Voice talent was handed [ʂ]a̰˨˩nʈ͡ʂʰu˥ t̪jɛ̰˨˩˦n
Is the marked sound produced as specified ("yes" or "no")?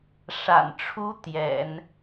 yes